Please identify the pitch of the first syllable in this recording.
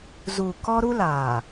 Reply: low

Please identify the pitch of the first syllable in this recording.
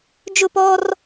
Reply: falling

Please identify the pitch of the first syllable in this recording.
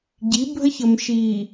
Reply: rising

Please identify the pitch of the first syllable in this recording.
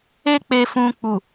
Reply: high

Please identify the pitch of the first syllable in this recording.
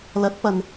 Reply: rising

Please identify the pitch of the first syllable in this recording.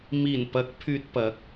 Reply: low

